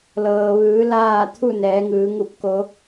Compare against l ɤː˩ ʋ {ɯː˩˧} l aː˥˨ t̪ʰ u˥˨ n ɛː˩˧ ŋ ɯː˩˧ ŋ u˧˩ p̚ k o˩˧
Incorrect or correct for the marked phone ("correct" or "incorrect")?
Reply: correct